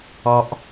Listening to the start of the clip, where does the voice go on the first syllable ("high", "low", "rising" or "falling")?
high